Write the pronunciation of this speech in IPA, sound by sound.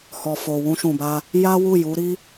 h ɔ˨ f o˨ w ũ˧ ʃ ũ˨ b a˧ | j a˦ w u˦˨ j u˨˦ ɾ i˦

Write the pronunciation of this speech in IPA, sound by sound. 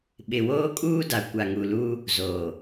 ɓ ɪ˨ w oː˦ kʼ uː˦ d a˨ kʷ a˨ ŋ u˨ l u˦ | z o˨

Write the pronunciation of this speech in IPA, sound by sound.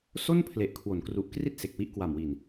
s o˥˩ n pʰ l e˨˩ ʔ kʰ w o˩˦ n k r u˨˩ ʔ k r i˥˩ t̚ s e˨˩ k̚ w i˥˩ ʔ k w a˨˩ m w i˨˩ n

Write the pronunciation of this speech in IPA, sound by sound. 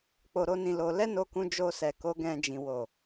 k͡p o˧ ɾ o˦ n ĩ˦˨ l o˧ l ɛ˦ n o˧ k ũ˧ d͡ʒ o˧ s ɛ˨ k o˨˦ ɡ ɛ̃˧ d͡ʒ ĩ˨ w o˨

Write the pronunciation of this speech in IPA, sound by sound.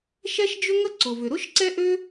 ʃ ɛ˥ ʃ d͡ʒ ʏ˥ ŋ ə˥ ǀ ʊ˩ v ʏ˩ ɾ ʊ˥ ʃ ǀ ɛ˥ ʔ ø˥

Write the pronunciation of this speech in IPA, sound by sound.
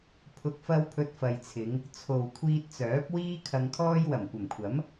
pʰ ʊ˨ k̚ f ɐ˧ w pʰ ɵ˧ t̚ f ɐ˨ j t͡sʰ ɪ˨˧ ŋ | t͡sʰ o˨ w kʷʰ iː˧ t̚ t͡s œː˨˥ p̚ w iː˥ kʰ ɐ˧ ŋ kʰ ɔː˥ j w ɐ˨˩ m kʷ ɐ˨˩ m kʷʰ ɐ˨˥ m

